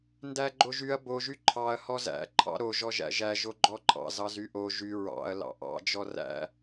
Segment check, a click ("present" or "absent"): present